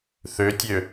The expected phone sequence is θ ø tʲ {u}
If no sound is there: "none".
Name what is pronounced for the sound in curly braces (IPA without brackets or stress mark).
ø